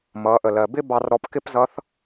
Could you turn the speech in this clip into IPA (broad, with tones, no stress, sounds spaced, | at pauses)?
m ʌː˩˧ ʔ ə˩ l ɜ˩ b ɪ˥ b ɑ˧ r ɾ ɔ˧ p k ɪ˥ p z ʌ˧˥ θ